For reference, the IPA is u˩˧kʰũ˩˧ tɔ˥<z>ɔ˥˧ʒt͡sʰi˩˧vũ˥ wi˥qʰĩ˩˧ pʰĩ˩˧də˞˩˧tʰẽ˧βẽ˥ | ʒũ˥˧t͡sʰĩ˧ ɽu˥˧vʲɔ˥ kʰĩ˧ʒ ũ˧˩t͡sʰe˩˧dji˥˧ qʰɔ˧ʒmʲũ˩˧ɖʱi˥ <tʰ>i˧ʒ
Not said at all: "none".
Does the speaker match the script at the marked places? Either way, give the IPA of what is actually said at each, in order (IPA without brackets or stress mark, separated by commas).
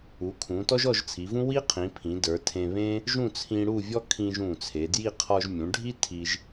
ʒ, tʰ